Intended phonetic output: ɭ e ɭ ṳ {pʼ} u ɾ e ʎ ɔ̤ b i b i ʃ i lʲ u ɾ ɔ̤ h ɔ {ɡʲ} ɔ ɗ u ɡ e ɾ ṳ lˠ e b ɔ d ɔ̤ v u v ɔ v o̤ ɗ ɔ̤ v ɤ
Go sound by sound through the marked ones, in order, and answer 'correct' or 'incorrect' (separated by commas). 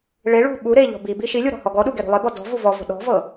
incorrect, incorrect